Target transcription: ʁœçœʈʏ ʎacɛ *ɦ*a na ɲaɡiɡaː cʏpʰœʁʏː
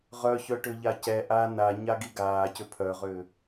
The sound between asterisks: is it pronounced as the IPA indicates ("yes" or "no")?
no